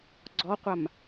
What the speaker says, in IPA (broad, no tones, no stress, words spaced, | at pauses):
ɡ͡ǀɔqʷam